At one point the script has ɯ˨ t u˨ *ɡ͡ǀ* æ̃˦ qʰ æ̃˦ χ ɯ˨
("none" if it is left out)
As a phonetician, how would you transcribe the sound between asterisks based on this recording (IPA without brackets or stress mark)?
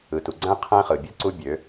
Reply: ɡ͡ǀ